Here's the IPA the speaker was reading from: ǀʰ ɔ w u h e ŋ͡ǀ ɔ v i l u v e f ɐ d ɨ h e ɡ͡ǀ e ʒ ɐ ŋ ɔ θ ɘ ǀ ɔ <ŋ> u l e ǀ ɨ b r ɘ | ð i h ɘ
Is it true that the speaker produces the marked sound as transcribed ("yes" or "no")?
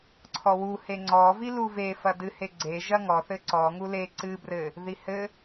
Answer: yes